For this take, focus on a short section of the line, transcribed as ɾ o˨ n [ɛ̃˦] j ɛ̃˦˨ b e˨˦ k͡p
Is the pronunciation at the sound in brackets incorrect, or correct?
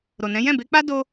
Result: incorrect